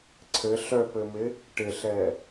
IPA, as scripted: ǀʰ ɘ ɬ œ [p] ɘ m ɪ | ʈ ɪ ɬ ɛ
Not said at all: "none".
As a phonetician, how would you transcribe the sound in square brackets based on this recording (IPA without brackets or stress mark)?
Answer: p